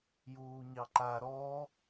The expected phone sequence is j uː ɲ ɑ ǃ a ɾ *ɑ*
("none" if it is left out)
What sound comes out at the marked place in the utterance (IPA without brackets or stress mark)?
ɔ